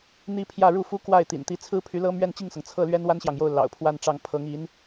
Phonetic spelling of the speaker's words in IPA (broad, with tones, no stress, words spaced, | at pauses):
n̪i˥pʰjä˥˧ ɻu˥˩fu˥ kwa˥˩ɪ̯ t̪ḭ˨˩nt̪i˧˥t͡sʰɹ̩˥ pʰy˧˥lɤ˥ mɥɛ˥˧nt͡ɕi˥˩ŋsɤ˩ŋ t͡sʰɤ˥˩ lɥɛ˥nwa˥nɕjɑ˨ŋjo˥˩ʊ̯ lɑ̰˨˩ʊ̯pʰwa˥˧nʈ͡ʂɑ˥˩ŋ pʰɤ˧˥ŋi˧˥n